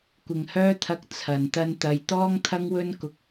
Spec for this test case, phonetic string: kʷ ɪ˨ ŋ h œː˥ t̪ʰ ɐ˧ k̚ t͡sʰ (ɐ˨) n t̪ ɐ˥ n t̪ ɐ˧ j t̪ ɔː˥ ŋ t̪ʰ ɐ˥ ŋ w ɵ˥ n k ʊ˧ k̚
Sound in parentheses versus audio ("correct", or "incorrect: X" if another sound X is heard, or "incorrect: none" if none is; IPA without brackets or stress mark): correct